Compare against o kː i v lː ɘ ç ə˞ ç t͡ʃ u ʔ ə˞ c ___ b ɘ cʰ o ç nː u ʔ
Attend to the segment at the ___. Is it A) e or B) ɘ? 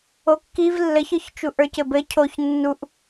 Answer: B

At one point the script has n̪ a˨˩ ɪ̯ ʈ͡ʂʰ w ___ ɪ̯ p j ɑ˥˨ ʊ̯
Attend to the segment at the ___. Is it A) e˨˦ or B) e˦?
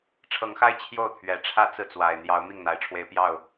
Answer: B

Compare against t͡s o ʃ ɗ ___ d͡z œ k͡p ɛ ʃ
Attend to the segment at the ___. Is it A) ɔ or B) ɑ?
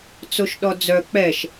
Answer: A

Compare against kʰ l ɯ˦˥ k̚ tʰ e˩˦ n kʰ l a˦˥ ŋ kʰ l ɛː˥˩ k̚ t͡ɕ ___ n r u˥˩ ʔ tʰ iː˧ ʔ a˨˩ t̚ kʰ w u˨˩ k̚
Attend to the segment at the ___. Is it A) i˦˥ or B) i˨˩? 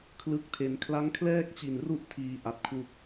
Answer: B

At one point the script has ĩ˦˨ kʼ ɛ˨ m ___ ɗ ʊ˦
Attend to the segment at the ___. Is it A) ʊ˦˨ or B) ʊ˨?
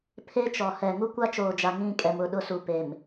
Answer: A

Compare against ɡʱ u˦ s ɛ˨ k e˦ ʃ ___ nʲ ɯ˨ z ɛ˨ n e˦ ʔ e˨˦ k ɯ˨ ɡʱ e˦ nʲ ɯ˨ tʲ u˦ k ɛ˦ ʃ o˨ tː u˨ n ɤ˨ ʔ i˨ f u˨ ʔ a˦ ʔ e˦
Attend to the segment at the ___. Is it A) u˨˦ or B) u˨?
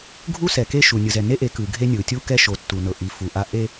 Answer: B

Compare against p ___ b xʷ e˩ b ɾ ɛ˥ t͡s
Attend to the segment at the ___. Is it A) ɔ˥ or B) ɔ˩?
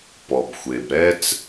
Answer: B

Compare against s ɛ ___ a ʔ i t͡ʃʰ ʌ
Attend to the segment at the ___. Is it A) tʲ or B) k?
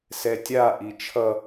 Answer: A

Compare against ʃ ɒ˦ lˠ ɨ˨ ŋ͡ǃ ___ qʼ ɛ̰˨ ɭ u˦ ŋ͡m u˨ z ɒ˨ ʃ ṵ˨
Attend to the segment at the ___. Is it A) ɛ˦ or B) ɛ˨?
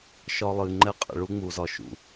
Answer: A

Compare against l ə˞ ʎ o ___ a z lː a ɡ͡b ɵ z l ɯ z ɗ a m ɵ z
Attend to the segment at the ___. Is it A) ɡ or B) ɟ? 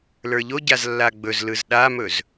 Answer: B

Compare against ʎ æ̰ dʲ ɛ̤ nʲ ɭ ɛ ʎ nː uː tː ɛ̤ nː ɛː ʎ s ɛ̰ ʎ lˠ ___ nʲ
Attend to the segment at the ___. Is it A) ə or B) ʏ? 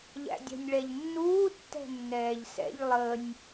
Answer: A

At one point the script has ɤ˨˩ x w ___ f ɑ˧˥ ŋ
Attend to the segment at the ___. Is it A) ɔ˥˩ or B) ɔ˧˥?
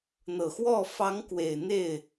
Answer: A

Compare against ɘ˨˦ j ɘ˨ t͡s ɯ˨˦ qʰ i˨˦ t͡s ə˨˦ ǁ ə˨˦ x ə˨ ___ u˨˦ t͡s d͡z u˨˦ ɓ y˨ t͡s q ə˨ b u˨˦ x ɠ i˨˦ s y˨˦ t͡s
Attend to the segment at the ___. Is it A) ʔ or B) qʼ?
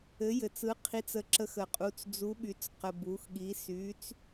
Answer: B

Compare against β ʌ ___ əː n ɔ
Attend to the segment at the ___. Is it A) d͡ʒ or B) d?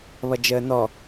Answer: A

